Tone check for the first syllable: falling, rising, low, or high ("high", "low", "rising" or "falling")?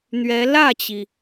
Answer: rising